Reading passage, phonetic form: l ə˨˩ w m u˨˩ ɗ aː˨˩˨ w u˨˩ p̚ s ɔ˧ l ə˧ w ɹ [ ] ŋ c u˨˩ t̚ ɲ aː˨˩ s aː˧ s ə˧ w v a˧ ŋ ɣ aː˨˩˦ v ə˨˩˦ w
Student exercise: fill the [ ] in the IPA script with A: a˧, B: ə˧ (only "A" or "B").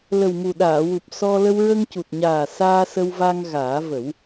B